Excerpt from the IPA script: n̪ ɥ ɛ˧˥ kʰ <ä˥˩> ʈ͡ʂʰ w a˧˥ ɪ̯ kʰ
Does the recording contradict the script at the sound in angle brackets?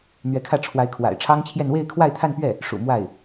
no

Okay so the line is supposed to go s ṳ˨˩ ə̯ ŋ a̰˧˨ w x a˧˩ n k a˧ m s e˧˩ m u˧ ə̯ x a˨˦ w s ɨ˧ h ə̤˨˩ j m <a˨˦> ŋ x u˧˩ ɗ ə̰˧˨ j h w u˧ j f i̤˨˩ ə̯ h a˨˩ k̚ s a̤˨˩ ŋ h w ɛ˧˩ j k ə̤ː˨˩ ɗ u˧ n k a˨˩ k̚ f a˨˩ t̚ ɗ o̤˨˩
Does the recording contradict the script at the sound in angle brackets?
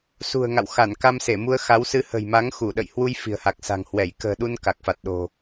no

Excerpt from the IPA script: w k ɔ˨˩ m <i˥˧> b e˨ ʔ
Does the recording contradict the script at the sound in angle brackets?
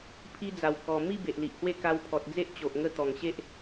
no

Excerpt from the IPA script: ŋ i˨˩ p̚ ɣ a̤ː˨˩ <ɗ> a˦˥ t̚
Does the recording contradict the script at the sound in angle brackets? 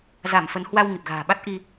yes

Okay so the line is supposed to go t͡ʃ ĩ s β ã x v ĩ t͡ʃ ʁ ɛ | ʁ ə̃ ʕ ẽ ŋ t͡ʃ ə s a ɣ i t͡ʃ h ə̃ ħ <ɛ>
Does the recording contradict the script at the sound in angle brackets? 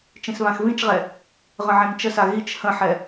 no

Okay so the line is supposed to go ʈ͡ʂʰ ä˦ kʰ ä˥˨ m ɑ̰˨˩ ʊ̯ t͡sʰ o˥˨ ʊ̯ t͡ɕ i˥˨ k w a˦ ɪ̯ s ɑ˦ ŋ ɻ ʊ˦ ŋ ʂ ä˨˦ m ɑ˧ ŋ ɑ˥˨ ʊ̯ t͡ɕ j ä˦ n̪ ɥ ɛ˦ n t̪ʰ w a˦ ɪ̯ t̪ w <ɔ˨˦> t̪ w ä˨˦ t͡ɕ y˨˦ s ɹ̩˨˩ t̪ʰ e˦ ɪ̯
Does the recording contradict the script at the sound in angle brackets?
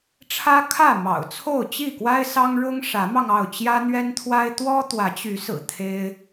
yes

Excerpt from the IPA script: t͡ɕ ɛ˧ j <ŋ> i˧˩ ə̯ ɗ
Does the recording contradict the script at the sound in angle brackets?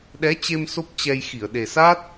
yes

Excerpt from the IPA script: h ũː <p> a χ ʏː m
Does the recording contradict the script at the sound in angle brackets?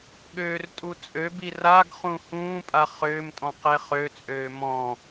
yes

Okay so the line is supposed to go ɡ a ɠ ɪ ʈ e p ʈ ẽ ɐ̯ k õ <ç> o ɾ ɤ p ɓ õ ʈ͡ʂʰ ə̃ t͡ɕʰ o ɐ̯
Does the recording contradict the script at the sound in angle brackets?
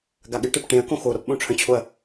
yes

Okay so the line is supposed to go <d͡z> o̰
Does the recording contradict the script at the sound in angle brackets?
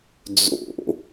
no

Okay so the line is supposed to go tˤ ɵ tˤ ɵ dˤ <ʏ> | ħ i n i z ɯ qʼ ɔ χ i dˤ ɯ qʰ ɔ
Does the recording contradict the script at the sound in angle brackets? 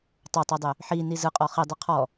no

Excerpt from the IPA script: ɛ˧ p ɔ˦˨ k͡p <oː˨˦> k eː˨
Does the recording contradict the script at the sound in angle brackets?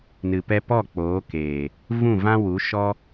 no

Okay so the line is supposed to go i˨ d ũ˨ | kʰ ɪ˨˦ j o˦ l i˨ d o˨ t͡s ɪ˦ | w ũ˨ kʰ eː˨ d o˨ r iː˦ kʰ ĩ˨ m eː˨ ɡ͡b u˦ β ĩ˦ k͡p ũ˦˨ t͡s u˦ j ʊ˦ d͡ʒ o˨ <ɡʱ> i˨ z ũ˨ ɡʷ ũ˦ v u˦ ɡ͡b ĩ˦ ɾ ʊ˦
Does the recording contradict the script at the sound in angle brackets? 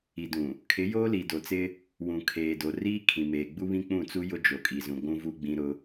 yes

